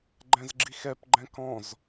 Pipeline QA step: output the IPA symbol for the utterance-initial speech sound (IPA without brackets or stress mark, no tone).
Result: ɡ͡ǃ